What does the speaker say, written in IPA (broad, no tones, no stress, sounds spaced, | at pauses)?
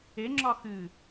e ŋ͡ǁ ɒ x ɨ